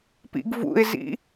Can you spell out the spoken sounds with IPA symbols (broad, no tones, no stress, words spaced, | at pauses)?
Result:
pḭɡvṵɪ̯zḭ